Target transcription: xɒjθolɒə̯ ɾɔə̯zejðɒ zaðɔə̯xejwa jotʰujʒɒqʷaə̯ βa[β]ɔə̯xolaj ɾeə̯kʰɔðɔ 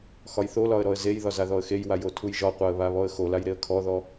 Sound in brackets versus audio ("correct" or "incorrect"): correct